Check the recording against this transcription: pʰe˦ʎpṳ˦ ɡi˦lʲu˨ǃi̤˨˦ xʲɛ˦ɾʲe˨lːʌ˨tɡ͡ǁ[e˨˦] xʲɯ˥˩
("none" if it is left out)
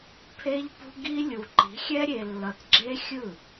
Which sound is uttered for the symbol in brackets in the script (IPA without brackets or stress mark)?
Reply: e˦